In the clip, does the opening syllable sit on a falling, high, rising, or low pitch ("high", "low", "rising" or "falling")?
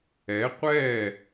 rising